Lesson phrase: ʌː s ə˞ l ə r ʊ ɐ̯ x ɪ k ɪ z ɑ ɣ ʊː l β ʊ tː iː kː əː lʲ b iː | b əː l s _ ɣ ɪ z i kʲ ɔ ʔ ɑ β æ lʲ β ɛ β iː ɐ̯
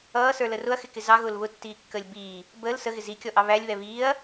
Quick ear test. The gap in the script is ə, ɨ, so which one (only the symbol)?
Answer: ə